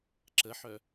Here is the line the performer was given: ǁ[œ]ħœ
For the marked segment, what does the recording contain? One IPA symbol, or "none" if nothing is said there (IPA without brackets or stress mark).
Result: ə